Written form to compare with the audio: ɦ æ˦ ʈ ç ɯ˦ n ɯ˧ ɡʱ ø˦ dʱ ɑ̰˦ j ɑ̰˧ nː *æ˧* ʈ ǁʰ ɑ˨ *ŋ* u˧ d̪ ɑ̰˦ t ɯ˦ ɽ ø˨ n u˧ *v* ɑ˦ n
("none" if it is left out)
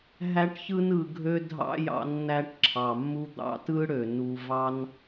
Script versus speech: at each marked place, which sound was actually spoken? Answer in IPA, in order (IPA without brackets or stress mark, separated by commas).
æ˧, mː, v